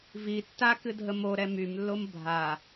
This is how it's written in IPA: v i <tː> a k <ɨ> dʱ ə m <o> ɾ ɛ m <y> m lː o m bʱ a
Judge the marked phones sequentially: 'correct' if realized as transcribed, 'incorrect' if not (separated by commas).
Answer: correct, correct, correct, correct